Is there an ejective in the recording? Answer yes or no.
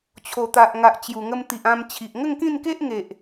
no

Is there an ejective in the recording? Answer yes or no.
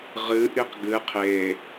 no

